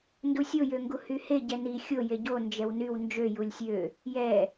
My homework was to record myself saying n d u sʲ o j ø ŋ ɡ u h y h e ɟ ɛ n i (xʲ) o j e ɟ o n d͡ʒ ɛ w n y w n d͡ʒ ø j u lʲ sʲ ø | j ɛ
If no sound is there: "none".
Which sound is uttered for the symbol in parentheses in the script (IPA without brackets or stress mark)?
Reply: xʲ